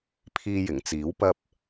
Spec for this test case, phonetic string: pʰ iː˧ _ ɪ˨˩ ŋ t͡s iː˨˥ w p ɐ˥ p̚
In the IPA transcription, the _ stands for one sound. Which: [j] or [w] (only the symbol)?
j